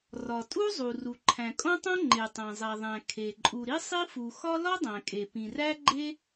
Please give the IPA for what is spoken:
rɒ˩tʼu˥zˤu˩ ru˩ǃʰæ̃˩kʼõ˥tˤõ˥ ŋ͡ǃe˩tˤæ̃˩zˤæ˩ðˤæ̃˩ kʰe˩ ǃʼu˩ɾi˥sˤi˥fu˩ xɒ˥ lɒ˥dˤæ̃˩kʼe˩ pĩ˩ræ˥ɡ͡ǃe˥

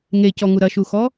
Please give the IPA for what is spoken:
ŋecɔŋu ɾɐʃuxɔ

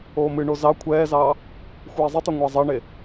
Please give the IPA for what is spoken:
oːmɨɳo zɑ kʷʰɛːzɑː | xʷɛːzˤɨtˤɛ ŋʷɑzˤɑɳe

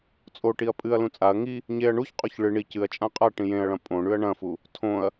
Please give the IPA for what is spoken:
t͡sʼoʈiɐ̯ pʼɨɐ̯lũ t͡sʼaɐ̯ ŋi | ɲeɐ̯ ɳuçqʼoç ɭɨ ɳi cɨɐ̯t͡ʃʼã qʼa ʈĩjẽɐ̯ɭɐ̃ pʼõɳʉɐ̯ ɳɐ̃fu | tʰõɐ̯

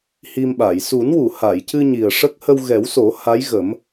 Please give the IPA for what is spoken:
hi˧mɓa˨˩˨j su˨˩˦nwu˨˩˨ha˨˩˨jcɨ˧ ɲi˨˩ə̯ʂə˦˥k̚ hə˧wɣɛ˨˩˦wso˨˩˦ ha˧˥jɣə˨˩˦m

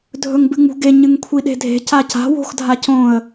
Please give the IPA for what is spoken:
dʱɵŋbɨŋ͡mṳɡe ɲɨŋkʷʰiɗe̤dʱe̤ caca̤ wo̤xdʱacõə̯

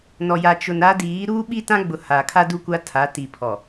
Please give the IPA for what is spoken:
nɔ˨ja˨t͡ʃʊ˨n a˦diː˨˦ ɾuː˦ ɓi˦tã˦ɡ͡bʊ˨ ha˨kʰa˦ du˦kʷa˦ tʰa˨˦ ti˨pʰɔ˨

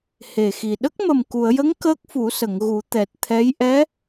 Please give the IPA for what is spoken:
he˨˩xi˨˩ ɗə˦˥k̚mə˨˩mku˨˩˨ə̯jə˧˥ŋ kəː˦˥k̚fu˨˩˦sə˨˩˨ŋɣu˨˩˦ t̪ɛ˨˩t̚t̪ʰɛ˧˥j ʔɛ˧˥

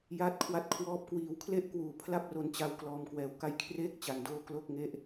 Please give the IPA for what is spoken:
jaː˦˥t̚kʰwa˦˥t̚kʰwɔː˦˥p̚ kwiː˩˦w kʰle˥˩ʔkwuː˨˩ pʰla˥˩p̚ro˧nt͡ɕa˧w klɔː˧mkwɛː˧wka˥˩j kʰreː˥˩k̚ t͡ɕa˧ndoː˥˩ klo˥˩k̚ŋe˥˩ʔ

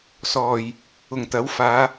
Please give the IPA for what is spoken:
sɔː˨˩j | ʊ˨˩ŋt̪ɐ˨˥wfaː˨˧

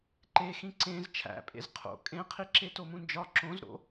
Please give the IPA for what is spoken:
ǃexĩ ǀẽz t͡ʃʰæ̰pʼḛz qʰo̰ kʼẽqʰi ǁetomũnd͡ʒɒ ǁõzɾo̰

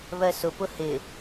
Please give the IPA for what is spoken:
βɜsʊpʊ hɪ

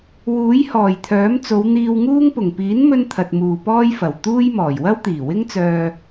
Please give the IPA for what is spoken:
wuː˨˥jhɔː˨˩jt̪ʰœː˨˥m t͡so˨˧wn̪iː˧wŋuː˥ŋ pʊ˨˩ŋ piː˨˥nmɵ˧n t̪ʰɐ˨t̚muː˨pɔː˥jfɐ˨˩w t̪uː˥jmɔː˨˩j wɐ˥wt̪iː˨˩wɪ˥ŋt͡sœː˧

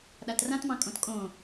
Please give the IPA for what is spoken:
ɗatrãtmɑ̃ kʼõtkʼõ

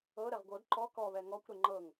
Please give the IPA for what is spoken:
ɤɾɛʁ ɡʷɤd ǃɔ kɔβɛ ŋɔkʷ ɾeŋ͡ǃɤŋ

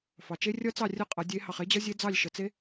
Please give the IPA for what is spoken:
fɑ˨t͡ʃe˦˥ rʲʌ˦˥ t͡sɑ˥˨ rʲə˥˨qʼʌ˨˩˦ dʲe˨˦ hɑ˨χe˦˥d͡ʑʌ˦˥ zʲe˦˥ d͡zɑ˥˨lʲʃə˨˦ t͡se˦˥

